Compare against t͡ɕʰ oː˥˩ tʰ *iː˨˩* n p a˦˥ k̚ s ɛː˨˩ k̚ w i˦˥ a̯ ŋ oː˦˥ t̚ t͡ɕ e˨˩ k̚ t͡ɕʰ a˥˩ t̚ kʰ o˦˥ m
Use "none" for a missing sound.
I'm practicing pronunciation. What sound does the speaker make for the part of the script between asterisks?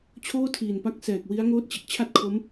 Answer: iː˨˩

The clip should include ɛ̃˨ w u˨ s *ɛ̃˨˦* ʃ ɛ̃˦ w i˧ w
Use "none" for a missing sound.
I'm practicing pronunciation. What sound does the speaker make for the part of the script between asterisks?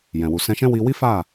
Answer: ɛ̃˧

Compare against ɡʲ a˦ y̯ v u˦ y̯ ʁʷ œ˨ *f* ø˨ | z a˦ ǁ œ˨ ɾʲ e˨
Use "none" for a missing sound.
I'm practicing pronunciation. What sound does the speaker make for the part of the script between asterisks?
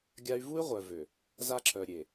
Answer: v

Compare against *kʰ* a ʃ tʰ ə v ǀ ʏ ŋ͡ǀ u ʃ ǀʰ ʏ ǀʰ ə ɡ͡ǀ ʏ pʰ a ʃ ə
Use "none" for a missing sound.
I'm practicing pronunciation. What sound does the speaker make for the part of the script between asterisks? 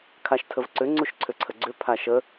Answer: kʰ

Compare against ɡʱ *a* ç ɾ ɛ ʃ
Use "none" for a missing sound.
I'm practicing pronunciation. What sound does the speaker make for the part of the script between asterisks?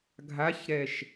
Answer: a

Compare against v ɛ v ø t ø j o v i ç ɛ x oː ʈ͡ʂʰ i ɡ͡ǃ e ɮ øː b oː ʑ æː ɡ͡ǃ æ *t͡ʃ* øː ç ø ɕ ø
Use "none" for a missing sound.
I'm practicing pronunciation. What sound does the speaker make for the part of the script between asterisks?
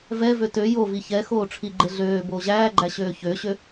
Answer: ɕ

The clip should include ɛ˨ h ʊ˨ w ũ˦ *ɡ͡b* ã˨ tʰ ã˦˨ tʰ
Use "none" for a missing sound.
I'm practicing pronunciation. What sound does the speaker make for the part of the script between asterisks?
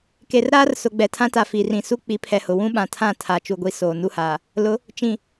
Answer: ɓ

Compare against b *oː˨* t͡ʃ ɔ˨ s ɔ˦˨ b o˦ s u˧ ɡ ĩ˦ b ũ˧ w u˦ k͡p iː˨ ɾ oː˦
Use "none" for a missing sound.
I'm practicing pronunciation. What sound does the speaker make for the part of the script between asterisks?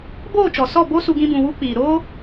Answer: oː˦˨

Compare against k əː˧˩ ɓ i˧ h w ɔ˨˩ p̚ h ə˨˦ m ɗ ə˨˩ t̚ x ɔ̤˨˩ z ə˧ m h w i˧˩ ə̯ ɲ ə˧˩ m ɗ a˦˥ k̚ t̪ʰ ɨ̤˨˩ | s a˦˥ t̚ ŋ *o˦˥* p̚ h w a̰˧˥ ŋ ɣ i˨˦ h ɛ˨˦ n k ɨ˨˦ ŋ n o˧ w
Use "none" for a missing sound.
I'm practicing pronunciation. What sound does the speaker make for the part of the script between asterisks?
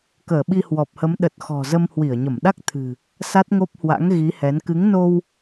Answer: o˦˥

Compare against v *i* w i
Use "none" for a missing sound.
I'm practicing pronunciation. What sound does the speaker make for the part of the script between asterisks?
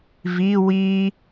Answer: i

